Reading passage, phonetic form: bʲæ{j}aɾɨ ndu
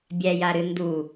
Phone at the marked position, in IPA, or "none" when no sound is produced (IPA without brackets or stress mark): j